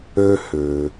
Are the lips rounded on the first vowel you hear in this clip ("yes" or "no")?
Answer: yes